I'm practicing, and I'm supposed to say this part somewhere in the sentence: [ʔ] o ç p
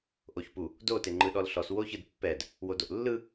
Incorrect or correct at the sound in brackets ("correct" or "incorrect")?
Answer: correct